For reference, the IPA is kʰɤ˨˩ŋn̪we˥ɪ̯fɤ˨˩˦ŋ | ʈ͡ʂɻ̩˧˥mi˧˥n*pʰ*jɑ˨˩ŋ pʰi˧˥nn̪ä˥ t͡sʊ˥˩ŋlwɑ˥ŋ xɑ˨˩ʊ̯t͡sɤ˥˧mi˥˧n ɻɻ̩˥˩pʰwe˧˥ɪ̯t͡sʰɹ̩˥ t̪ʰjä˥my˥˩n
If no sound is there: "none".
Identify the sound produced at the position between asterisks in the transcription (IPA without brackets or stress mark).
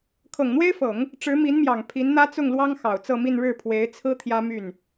m